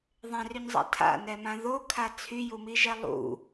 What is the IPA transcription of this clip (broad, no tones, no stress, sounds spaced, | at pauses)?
ðˤ ɛ̃ r y ɲ zˤ a̰ tʰ a̰ n ɛ m ã ð o kʰ a t͡sʰ y j u m i ʒ ɛ lˠ ṵ